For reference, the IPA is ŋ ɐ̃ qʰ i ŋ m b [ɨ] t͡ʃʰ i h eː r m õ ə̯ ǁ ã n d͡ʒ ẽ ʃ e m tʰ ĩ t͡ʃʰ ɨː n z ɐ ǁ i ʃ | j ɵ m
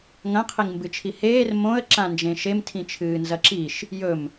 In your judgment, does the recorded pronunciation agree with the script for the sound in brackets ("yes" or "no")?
yes